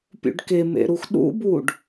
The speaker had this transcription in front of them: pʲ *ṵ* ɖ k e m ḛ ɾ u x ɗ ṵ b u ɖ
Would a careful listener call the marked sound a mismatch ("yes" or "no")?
no